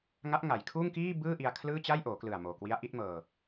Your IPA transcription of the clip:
ŋ a˦˥ ʔ ŋ a˩˦ j kʰ uː˥˩ ŋ k iː˥˩ b ɯː˥˩ ʔ i˧ a̯ kʰ l ɯː˥˩ t͡ɕ a˥˩ j ʔ oː˩˦ k l ɯ˨˩ a̯ m oː˨˩ k w i˦˥ a̯ ʔ i˦˥ t̚ m ɤː˧

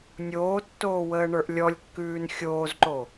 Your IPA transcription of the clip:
nʲ oː tː oː w əː ɳ ə˞ ʔ lʲ ɔ lʲ kː ʉː n xʲ oː z ǃ o

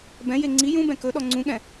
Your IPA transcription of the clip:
b ɛ̃ j e ŋ͡ǀ i j ũ b ɛ̃ k ɵ ɗ ɔ ŋ͡ǀ ũ ɠ ɛ̃

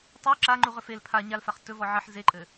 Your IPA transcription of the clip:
tˤ u ǁ a ŋ͡ǃ u ʁ ɵ f e l pʰ a ɲ a l f a χ t ɵ v ɔ ʕ ɘ ħ z e ǃʼ ɘ

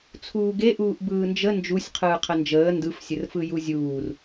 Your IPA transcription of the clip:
t͡sʰ uː ɡ e ʔ uː ʔ b ɯː n d͡ʒ ə n d͡ʒ u sʲ qʰ ɯː qʰ ə n d͡ʒ əː n d ɯ f sʲ ə r f ɯ j u zʲ uː r

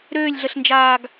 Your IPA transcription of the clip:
ɾ øː lʲ ɮ ə ɬ n d͡ʒ aː ɡ

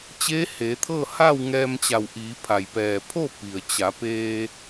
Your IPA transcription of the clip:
t͡ɕ eː˧˥ h eː˩˧ t̪ʰ ɤː˥˨ h a˥˨ w ŋ ɛː˧ m t͡ɕ a˧˩ w ʔ iː˩˧ pʰ a˩ j p ɛː˩ pʰ o˥˨ p i˩ ə̯ t͡ɕ a˩˧ p eː˧

